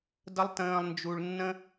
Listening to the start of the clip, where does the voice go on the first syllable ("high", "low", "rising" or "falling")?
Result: low